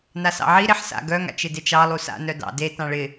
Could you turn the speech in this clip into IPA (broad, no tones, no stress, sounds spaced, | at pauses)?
n a s ɑ̰ ʕ i ɾ e ħ s a̰ ɡ œ ŋ a̰ t͡ʃ ɪ d e t͡ʃ ɑ lˠ u s a̰ n œ d ɑ̰ d e t ɑ̃ ɭ ɪ